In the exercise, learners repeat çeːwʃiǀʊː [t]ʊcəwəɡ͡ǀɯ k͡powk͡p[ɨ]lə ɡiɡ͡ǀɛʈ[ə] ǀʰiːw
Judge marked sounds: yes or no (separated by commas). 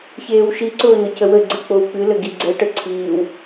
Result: no, yes, yes